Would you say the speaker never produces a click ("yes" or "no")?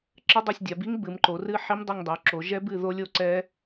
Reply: no